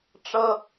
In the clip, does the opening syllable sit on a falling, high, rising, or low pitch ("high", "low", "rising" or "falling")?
high